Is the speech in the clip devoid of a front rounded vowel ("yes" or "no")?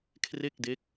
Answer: yes